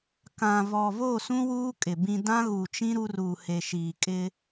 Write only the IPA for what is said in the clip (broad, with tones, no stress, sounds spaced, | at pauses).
k ã˨ v ɔ˨ v o˦˨ s ũ˦ w uː˦ kʼ ɪ˨ b ĩ˦ d ã˦ ɣ u˨ t͡ʃ ĩ˦ ɾ u˦ r uː˨ h e˨ ʃ iː˨ kʼ ɪ˦